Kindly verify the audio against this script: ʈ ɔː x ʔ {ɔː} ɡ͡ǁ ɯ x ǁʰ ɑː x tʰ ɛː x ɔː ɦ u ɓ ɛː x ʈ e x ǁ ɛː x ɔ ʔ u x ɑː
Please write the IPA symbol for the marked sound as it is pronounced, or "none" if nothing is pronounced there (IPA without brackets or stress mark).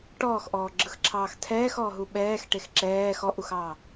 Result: ɔː